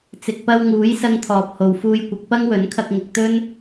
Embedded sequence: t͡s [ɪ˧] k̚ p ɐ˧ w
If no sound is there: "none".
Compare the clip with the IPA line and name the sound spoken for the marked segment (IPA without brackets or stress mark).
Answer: ɪ˨